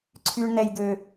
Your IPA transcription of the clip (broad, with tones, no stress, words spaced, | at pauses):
ǀʰy˦ɳnɛ˦jd̪ø˦